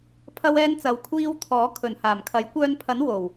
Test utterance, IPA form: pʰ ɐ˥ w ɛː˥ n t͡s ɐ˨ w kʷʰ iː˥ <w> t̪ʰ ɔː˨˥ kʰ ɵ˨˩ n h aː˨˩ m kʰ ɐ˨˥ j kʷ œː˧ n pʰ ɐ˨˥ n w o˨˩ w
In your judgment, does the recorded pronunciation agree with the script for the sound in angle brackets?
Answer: yes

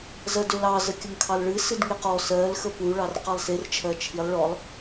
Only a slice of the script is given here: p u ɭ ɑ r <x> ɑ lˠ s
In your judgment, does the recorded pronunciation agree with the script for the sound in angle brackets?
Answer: no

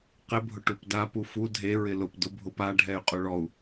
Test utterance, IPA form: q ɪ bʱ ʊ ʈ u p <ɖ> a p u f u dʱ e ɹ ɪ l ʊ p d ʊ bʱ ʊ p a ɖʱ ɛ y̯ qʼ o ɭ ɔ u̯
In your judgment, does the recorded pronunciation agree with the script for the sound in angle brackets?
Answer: no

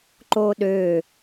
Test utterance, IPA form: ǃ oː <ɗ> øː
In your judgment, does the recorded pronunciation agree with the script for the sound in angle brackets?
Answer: yes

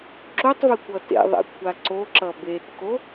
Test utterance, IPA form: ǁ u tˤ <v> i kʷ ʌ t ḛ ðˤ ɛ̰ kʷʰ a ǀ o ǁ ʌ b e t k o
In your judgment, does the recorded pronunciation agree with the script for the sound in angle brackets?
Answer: yes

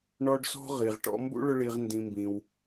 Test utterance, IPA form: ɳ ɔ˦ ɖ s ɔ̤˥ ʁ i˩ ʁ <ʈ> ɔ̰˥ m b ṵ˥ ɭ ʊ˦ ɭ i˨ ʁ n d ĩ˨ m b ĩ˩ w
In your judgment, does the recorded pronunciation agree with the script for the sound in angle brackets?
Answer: yes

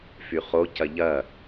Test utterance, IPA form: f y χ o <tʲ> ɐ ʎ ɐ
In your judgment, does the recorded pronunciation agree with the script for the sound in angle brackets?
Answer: no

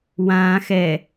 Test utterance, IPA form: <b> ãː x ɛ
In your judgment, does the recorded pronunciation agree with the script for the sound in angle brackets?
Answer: no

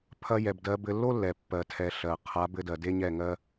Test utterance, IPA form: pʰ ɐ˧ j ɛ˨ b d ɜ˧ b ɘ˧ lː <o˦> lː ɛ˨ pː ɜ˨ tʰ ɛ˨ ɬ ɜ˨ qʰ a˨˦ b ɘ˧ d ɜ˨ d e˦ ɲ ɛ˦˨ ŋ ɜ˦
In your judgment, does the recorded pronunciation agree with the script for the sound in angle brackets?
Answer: yes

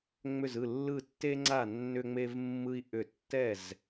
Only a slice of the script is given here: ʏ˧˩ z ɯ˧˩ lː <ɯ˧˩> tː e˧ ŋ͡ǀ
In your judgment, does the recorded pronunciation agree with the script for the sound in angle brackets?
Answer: yes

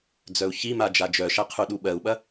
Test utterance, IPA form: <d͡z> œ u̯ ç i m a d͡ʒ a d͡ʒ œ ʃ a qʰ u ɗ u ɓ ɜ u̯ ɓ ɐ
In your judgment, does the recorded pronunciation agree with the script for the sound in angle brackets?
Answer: yes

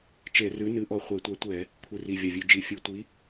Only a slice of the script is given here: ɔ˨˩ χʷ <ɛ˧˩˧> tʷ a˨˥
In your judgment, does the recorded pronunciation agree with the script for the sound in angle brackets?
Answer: yes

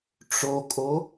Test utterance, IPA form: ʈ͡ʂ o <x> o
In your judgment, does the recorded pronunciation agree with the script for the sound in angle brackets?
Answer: no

